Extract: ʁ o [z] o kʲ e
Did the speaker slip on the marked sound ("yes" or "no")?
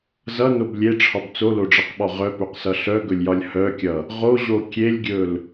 yes